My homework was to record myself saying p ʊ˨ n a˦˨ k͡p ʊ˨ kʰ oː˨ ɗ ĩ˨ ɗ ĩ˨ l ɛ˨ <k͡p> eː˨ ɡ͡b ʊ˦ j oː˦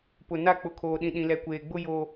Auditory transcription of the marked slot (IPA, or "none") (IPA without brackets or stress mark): kʷ